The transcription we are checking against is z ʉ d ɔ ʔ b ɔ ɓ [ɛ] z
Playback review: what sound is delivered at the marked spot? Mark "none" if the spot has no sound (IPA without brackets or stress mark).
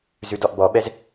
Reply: ɛ